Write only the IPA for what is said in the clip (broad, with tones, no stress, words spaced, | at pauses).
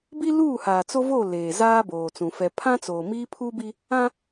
bi˦luː˦˨haː˨ t͡so˦vo˦˨ leː˨zaː˦boː˨t͡sũ˨ fɛ˨pʰã˦t͡soː˨ miː˦pʰu˦bi˦ | ã˦